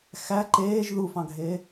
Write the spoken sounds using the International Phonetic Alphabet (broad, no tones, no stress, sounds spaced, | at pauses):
x æ ǃ eː ʒ ð u f ɑ̃ ɡʱ eː